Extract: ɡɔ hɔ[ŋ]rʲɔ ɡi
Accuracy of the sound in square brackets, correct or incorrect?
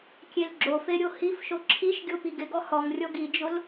correct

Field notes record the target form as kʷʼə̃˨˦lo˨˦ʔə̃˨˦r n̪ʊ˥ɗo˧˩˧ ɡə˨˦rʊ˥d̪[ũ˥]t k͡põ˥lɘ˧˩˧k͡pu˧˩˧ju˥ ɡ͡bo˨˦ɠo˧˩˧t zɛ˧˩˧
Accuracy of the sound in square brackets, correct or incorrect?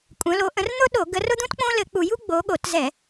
correct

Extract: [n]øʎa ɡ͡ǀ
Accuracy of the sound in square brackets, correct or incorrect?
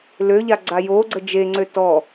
incorrect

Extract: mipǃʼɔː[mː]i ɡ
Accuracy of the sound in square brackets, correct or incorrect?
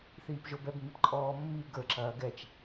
correct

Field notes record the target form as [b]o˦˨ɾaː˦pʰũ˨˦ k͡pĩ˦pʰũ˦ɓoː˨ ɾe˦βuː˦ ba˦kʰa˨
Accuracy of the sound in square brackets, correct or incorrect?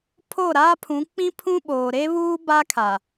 incorrect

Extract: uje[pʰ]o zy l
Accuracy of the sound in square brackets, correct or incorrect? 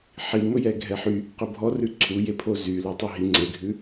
correct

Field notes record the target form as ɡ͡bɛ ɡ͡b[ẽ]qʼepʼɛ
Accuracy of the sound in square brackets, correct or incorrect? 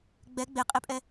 incorrect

